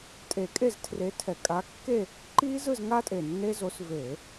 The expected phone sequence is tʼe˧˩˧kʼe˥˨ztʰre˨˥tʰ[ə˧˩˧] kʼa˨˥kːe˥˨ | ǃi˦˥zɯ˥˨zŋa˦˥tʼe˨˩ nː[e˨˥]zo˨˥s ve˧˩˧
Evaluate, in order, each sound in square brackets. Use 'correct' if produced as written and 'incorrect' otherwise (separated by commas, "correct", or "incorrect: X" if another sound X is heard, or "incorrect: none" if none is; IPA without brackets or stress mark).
incorrect: ɛ˧˩˧, incorrect: e˦˥